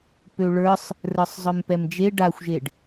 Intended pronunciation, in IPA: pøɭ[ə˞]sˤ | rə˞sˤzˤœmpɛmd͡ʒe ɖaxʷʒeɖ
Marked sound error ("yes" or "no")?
no